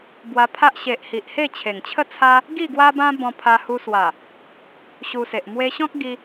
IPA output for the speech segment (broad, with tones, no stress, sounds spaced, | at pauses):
b w a˧ pʰ a˦ ʔ ɕ e˨ ʔ h i˨ ʔ h e˥˧ t͡ɕʰ e˨˩ ŋ t͡ɕʰ ə˥˧ t͡sʰ a˦ | ɡ i˥˧ ɡ w a˦ b ã˦ b ɔ̃˧ pʰ a˧ h u˧ s w a˨˩ | ɕ u˧ s e˨ ʔ m w e˧ ɕ ɔ̃˦ k̚ ɡ i˧